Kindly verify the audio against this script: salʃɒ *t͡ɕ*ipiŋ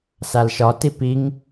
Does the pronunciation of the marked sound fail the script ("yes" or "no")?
yes